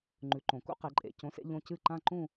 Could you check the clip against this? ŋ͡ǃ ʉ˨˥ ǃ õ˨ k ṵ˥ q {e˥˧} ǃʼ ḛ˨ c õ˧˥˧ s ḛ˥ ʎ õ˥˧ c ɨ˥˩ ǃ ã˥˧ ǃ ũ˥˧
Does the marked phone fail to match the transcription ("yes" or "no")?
yes